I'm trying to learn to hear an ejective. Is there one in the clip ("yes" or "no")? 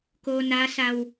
no